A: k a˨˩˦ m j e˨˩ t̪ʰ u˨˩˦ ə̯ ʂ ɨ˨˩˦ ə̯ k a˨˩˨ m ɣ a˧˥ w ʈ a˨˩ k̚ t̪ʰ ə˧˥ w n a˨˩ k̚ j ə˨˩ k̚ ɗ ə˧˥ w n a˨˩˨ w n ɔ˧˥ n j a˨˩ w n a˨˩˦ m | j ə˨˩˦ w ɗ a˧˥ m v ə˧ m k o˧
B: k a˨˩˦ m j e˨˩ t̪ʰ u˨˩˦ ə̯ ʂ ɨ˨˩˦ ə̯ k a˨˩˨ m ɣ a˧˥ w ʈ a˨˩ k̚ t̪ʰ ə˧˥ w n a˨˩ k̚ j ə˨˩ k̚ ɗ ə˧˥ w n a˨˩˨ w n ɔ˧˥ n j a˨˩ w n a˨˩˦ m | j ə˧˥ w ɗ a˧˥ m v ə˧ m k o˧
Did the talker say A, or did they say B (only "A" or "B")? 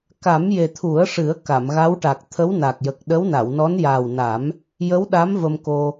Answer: B